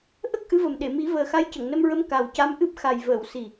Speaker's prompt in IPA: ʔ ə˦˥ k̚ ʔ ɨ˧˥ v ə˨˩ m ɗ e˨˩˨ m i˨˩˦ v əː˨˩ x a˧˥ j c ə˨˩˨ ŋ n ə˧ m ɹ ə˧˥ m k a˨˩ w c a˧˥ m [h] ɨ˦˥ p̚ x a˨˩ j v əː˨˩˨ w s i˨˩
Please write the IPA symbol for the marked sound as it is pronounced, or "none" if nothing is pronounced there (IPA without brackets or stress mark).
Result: ʔ